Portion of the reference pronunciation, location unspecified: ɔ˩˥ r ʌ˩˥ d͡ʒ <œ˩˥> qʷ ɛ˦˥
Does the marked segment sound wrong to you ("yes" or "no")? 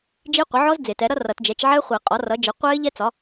yes